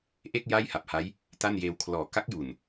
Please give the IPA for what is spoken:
ʔ e˥˩ k̚ j a˥˩ j h a˨˩ p̚ h a˦˥ j | t a˥˩ n j eː˧ w kʰ l ɔː˨˩ k a˦˥ k̚ j u˨˩ n

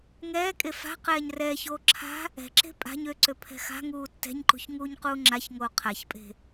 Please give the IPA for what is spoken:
ŋ ɛː kʼ e f a̤ q ɛː ɲ r ɛː ç oː ǁʰ a̤ | ɛ̤ ǁ e̤ pʼ a̤ ɲ ø ǀ ø pʰ ɛ̤ x a̤ ŋ uː tː ɛ̤ ɲ ǃ ṳ ç ŋ uː ɲ q uː ŋ͡ǁ a ç ŋ oː qʰ a ç pʼ e̤

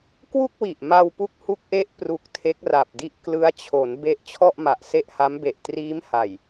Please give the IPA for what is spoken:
k w u˥˩ k̚ w i˨˩ ʔ m a˧ w p u˦˥ k̚ h u˦˥ k̚ ʔ e˦˥ ʔ p r u˨˩ k̚ tʰ e˦˥ k̚ r a˨˩ p̚ d i˥˩ ʔ k l ɯ˦˥ a̯ t͡ɕʰ o˩˦ n b e˦˥ ʔ t͡ɕʰ ɔ˥˩ ʔ m a˨˩ ʔ s e˥˩ ʔ h a˦˥ m b e˨˩ ʔ t r iː˦˥ m h a˨˩ j

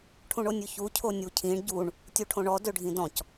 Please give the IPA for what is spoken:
ʈʰ ũ ɳ o nʲ ʉ ç u cʰ o nʲ u cʰ ĩ ɳ ɟ u ɳ | tʲ u ʈʰ õ ɳ ɔ d ø ɖʱ ĩ d ɔ̃ c

